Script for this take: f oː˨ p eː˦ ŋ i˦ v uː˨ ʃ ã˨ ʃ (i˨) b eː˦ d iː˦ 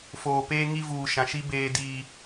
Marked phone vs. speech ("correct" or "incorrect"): incorrect